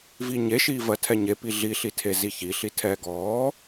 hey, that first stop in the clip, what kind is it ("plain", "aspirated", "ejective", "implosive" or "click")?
aspirated